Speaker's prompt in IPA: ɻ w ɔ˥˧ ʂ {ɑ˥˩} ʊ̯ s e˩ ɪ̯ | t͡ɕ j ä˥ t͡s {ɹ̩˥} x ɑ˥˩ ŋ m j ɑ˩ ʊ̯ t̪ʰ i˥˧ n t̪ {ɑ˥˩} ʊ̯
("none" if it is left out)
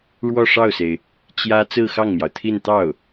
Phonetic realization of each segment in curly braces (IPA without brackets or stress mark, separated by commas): ɑ˥˩, ɹ̩˥˧, ɑ˥˩